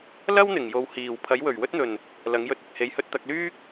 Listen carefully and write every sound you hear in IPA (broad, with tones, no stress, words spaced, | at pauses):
lɐ˥wn̪ɪ˨˩ŋ jo˨whiː˨˩w pʰɐ˨˥jwɵ˨˩ɥwɵ˥t̚n̪ɵ˨˩n | lɐ˨˥ŋjɵ˧t̚ ɪ˨k̚he˨˧jhɵ˧t̚ t̪ɐ˧k̚lyː˥k̚